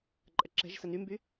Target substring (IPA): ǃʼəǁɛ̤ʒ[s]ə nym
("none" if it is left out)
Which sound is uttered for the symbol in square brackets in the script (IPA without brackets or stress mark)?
s